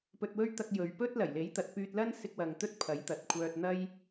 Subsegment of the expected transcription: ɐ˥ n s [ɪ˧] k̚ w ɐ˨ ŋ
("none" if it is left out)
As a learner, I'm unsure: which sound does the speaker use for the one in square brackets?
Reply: ɪ˧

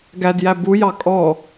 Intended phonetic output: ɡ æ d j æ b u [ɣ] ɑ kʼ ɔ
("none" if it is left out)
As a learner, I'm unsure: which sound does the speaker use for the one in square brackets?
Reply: j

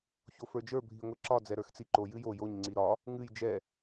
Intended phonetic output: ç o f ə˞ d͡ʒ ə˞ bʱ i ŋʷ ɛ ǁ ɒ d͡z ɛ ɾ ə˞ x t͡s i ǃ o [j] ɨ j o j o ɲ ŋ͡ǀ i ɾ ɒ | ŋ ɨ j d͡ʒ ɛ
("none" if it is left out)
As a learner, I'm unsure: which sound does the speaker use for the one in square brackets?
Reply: j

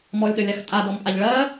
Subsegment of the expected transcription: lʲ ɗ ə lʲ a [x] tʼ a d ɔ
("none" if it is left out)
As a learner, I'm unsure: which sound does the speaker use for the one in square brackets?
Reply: x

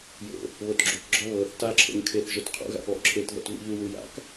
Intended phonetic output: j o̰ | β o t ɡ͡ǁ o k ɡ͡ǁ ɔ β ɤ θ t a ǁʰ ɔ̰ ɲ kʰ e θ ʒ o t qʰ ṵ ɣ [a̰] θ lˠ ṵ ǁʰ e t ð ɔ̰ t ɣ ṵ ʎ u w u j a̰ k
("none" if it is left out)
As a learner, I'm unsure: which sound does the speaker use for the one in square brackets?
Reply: a̰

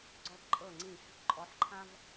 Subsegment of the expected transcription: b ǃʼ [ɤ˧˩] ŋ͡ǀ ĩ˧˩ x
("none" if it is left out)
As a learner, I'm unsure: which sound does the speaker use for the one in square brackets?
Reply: ɤ˧˩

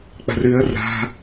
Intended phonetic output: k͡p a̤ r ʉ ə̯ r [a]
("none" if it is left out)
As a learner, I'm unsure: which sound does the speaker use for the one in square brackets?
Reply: a̤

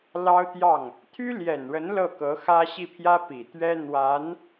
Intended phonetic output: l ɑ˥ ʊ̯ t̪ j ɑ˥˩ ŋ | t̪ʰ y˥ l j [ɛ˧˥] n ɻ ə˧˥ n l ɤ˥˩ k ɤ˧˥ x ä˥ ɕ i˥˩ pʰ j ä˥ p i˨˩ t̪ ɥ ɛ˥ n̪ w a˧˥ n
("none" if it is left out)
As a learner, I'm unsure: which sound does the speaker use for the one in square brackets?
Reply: ɛ˨˩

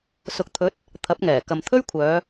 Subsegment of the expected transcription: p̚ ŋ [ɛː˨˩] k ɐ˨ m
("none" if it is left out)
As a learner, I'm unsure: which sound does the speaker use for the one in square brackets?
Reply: ɛː˨˩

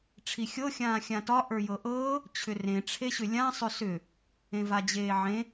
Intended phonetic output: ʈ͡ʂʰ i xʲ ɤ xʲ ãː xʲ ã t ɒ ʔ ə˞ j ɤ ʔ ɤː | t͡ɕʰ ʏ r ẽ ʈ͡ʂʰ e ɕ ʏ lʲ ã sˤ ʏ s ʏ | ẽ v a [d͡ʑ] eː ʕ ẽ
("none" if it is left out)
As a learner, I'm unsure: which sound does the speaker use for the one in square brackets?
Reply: d͡ʑ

